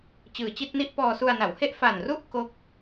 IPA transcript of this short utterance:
t͡ɕ ɯː˨˩ t͡ɕ i˥˩ t̚ n i˥˩ ʔ p ɔː˧ s u˧ a̯ n a˩˦ w h e˥˩ ʔ f a˨˩ n r u˥˩ ʔ k o˥˩ k̚

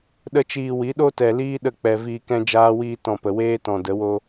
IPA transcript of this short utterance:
ɗ ə˦ t͡ʃ iː˧ w i˨˦ ɗ o˦ t ɛ˨ l iː˦ ɗ ə˦˨ k͡p ɛ˨ v iː˧ k ɛ̃˦ d͡ʒ aː˦ w iː˦ t ɔ̃˧ p ə˨ w eː˦ t ɔ̃˨ d ə˨˦ w o˦

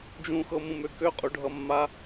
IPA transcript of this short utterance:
d͡ʒ ũ x ɤ m ũ m ø k ø qʼ u ɖʱ ʌ mː a

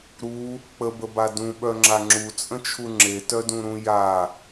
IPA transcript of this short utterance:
ɾ u | k͡p ə b ə b a d ũ ɓ œ ŋ͡ǁ a ŋ͡ǁ u t͡sʼ ə̃ t͡ʃʰ u ŋ͡ǁ e t œ d ũ ɾ ũ j a

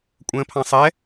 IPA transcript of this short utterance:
kʷʼ ə̃ː pʰ ɑ̃ sˤ ɛ

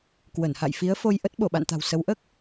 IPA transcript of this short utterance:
k w ə˧˩ n h a̰˧˨ j f i˨˦ ə̯ f o˧ j ʔ ə˦˥ t̚ ɓ o˧˩ ɓ a̰˧˨ n t̪ a̤˨˩ w s ə˨˦ w ʔ əː˦˥ k̚

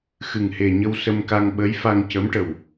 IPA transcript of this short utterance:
x ɨ˨˩ ŋ h e˨˩ ɲ ə˧ w s ə˧ m k a˧ ŋ ɓ ə˧˥ j f a˧ ŋ c ə˧˥ m ʈ ə˨˩ w

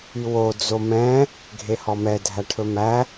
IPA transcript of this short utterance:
y w o d͡z o m ɛ̃ | ɡʱ e h ɔ m ɛ dʱ æ ʈʰ ɵ m æ

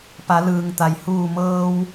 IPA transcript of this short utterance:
p a˩˧ l ɯː˩ ŋ t̪ a˩ j h uː˧˩ m ɤː˧ w

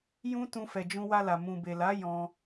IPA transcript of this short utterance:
j ũ˦ t ũ˧ f ɛ˨ d͡ʒ ũ˧ w a˧ l a˨ m ũ˨ b e˨ l a˨˦ j ɔ̃˧

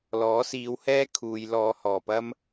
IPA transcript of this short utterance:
l ɔː˨˥ s iː˨˧ w h ɛː˥ kʰ uː˨ j l ɔː˨˧ h ɔː˨˩ p ɐ˥ m

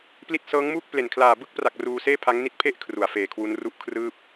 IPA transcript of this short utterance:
p l i˦˥ t̚ s ɤː˦˥ ŋ m uː˥˩ k̚ p l e˨˩ n kʰ l aː˨˩ b ɯ˥˩ k̚ p r a˨˩ k̚ r uː˧ s eː˥˩ pʰ a˦˥ ŋ n i˦˥ t̚ pʰ e˦˥ ʔ kʰ r u˩˦ a̯ f eː˨˩ kʰ w u˦˥ n r u˥˩ ʔ kʰ r ɯː˥˩ p̚

